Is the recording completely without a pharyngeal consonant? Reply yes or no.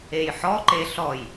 no